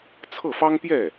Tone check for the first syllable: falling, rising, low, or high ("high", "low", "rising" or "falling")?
falling